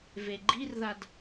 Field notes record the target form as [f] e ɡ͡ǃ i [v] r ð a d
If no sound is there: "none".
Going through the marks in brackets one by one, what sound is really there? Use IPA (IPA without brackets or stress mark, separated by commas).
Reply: v, none